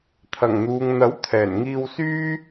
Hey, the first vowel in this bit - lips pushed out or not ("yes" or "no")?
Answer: no